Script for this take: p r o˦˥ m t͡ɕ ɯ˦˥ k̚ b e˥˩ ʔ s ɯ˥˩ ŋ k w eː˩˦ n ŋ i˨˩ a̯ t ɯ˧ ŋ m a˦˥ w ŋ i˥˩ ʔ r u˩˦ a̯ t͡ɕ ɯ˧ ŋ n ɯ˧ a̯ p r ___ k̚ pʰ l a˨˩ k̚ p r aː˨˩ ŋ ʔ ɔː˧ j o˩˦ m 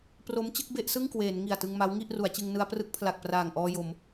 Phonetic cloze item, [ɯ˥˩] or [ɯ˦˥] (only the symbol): ɯ˦˥